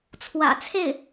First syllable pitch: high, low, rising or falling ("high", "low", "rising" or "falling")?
low